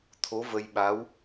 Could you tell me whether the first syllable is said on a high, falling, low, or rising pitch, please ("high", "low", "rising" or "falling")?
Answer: rising